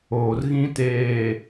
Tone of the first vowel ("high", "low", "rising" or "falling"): low